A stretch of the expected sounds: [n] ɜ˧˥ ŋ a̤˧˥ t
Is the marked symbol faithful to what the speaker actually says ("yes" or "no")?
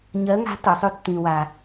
no